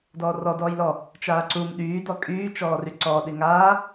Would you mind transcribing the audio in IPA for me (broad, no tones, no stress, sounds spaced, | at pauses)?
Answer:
d ɔː r ɔ d ɔː j l ɔ | t͡ʃ aː ǀ u m ɗ yː d ɔ kʼ yː t͡ʃ ɔː r y ǀ ɔ ɗ i ŋ aː